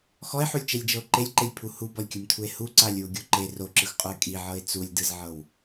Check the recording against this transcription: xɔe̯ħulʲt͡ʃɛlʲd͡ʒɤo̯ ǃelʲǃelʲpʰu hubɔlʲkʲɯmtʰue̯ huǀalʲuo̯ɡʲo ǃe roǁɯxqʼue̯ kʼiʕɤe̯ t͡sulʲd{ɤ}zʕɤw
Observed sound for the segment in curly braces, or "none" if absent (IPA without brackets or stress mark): ɯ